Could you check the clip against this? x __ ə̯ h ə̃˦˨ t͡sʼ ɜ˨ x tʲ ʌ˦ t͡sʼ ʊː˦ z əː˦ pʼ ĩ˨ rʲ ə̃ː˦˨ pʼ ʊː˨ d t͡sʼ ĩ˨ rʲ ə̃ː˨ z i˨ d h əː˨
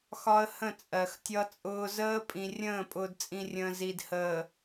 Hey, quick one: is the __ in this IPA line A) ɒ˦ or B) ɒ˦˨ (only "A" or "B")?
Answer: A